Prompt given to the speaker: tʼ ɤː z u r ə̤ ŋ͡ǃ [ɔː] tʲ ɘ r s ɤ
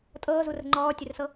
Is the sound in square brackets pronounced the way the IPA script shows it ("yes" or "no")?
yes